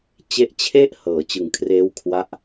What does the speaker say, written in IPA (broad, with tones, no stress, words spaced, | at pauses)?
t͡ɕe˦˥ʔt͡ɕʰe˥˩ʔ hɤː˩˦t͡ɕɯ˨˩ŋkʰreː˦˥w kʰwa˦˥ʔ